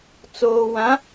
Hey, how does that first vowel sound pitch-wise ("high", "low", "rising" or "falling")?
low